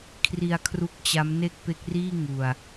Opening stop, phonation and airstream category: aspirated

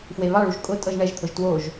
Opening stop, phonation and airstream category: ejective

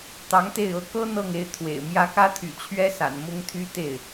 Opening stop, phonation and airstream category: plain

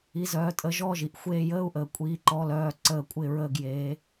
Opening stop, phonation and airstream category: ejective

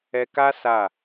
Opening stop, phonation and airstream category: plain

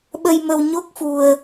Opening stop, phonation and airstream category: implosive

